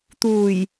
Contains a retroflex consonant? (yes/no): no